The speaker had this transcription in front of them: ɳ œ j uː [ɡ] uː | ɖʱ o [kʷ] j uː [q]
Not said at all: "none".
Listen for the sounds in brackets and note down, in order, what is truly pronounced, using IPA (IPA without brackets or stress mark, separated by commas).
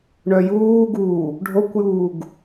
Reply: ɡ, kʷ, ɡ